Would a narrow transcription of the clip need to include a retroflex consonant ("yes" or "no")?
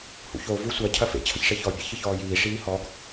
yes